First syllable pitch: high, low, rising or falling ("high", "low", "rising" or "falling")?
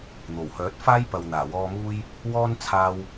low